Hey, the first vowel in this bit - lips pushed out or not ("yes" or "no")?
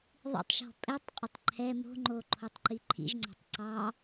no